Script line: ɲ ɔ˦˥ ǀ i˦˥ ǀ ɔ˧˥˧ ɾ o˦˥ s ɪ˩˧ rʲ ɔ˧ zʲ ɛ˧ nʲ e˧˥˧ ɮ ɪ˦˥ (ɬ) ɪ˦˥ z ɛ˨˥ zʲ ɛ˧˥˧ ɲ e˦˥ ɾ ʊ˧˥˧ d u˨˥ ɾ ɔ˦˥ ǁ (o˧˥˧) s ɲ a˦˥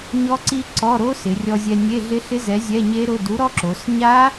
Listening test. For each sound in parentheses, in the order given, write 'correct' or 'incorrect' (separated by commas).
correct, incorrect